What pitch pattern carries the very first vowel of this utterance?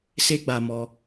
high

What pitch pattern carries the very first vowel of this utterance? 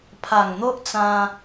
low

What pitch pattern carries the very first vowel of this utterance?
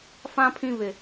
low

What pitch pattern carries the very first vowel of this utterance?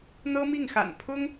high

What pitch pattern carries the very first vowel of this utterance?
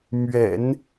low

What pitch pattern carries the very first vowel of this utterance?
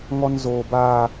high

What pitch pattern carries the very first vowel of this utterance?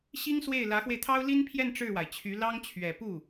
high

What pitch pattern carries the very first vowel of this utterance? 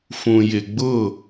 low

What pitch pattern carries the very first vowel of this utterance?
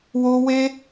high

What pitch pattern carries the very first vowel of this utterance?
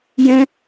high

